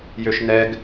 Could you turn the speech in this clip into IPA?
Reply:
jøʃnɛɡ

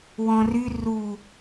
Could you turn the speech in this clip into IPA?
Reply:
wɔ̃ry ru

